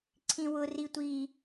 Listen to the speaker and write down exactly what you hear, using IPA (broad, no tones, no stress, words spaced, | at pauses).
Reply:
ǀʰĩwʊ ritʷi